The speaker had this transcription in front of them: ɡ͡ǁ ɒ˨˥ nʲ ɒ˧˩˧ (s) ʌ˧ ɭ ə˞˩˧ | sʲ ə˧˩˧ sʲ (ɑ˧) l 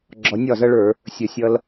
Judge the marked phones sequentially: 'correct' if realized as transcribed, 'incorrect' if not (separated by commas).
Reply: incorrect, incorrect